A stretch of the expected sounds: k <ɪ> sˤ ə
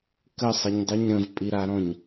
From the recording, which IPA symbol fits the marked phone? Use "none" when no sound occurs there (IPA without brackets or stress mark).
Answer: ə